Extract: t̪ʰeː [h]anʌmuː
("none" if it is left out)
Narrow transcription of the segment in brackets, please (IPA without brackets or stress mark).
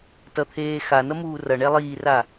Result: x